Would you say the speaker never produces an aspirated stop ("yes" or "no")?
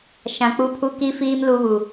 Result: no